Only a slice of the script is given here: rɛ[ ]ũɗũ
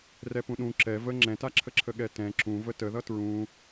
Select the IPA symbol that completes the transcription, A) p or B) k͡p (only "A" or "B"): A